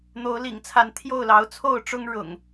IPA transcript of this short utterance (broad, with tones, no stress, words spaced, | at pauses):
n̪o˨˦ʊ̯lḭ˨˩ŋt͡sʰa˨˦n t̪ʰjo˥˨ʊ̯lɑ˨˦ʊ̯t͡sʰo˥˨ʊ̯ʈ͡ʂʊ˦ŋ ɻʊ̰˨˩ŋ